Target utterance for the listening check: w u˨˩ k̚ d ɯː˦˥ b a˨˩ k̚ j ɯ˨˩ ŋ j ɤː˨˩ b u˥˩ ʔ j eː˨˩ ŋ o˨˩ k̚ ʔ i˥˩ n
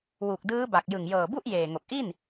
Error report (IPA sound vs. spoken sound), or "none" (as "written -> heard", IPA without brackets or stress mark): none